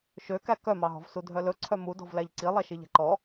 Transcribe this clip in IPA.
ʃ ø k æ k œ m ɑ ɦ ɔ̤ v s u dʱ œ l ɵ ǀʰ œ m u d ɔ̤ v l æ ʎ ǀ i lˠ ɛ ʃ i ʎ æ̤ ǃ ɔ

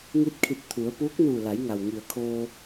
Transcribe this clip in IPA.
ŋ i˧˥ t̚ kʰ i˧˩ t̚ t̪ʰ u˩˧ ə̯ p uː˧˥ k̚ n uː˧˩ l a˩˧ j ŋ a˩ w ŋ i˩ ə̯ kʰ oː˧

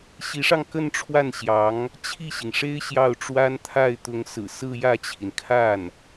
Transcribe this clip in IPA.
ɕ i˧˥ ʂ ɑ˧ ŋ k ə˥˧ n ʈ͡ʂʰ w a˥˩ n ɕ j ɑ˧˥ ŋ | t͡ɕʰ i˥˩ ɕ i˩ ŋ ʂ e˥ ɪ̯ ɕ j ɑ˥˩ ʊ̯ ʈ͡ʂ w a˥ n t̪ʰ a˥˩ ɪ̯ t̪ ʊ˧˥ ŋ s ɹ̩˨˩ s ɹ̩˥˧ j ä˥˩ t͡ɕʰ i˩ n kʰ a˥˩ n

